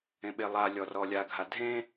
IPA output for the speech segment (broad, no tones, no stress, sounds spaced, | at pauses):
ẽ ɓ e lˠ a lʲ ɔ r ɔ lʲ a ɡʱ a dʱ ẽ